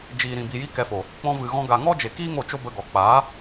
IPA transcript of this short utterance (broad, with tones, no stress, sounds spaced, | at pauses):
d͡ʒ iː˨ ɾ ĩ˨ b i˨ j i˧ k ɛ˧ f o˨ | k͡p ɔ̃˧ v ɨ˨ ɣ ɔ̃˧ ɡ a˨ ŋ ɔ˦ d͡ʒ e˨ k iː˦ ŋ o˦˨ t͡ʃ o˦ b ə˧ ɡ ɔ˨ k͡p aː˨˦